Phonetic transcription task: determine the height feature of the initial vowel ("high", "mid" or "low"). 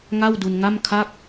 low